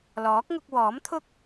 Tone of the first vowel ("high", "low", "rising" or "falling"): rising